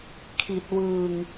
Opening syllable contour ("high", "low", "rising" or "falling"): low